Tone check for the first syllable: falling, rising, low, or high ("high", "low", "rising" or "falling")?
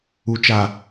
low